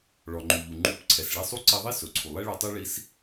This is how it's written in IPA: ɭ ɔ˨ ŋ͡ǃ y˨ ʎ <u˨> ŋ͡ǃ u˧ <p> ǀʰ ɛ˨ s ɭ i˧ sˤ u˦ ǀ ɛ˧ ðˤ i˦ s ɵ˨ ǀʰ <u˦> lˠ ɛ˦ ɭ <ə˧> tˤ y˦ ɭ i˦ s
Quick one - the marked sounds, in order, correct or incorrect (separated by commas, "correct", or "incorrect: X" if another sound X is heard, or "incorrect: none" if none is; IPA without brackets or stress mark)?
correct, correct, incorrect: u˨, incorrect: ɵ˧